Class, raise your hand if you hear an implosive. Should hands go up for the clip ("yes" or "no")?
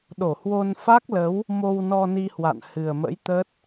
yes